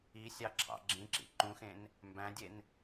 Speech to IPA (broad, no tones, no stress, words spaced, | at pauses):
isʲɑ ǁʰɑ̰ɡ͡ǁĩǁḭ ǃũxẽn | mbæ̃dʲen